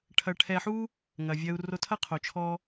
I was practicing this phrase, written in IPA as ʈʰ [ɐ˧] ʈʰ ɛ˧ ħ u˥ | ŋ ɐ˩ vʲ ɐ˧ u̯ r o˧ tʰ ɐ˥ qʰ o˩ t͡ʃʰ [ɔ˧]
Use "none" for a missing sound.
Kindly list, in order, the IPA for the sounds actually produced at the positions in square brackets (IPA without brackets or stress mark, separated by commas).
ɐ˧, ɔ˧